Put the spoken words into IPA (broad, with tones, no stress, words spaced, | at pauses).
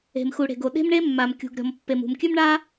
e̤˩mxu˩ɽe̤˩ɡo˩ ɗe̤˥mɳe˥mːa˩mkʲṳ˩ɡ ɾʲɔ̤˩mpːe˩m ṳ˩mkʲʉ˥mɳa˥